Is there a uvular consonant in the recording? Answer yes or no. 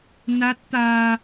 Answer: no